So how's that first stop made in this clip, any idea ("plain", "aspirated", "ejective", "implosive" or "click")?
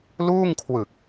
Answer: aspirated